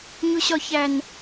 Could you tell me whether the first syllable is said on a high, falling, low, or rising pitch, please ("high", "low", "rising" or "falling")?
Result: high